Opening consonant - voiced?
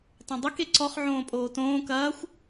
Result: no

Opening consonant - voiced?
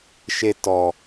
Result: no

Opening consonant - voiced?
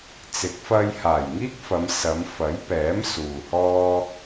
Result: no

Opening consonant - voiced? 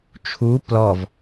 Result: no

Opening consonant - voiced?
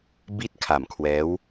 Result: yes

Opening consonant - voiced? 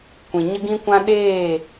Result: no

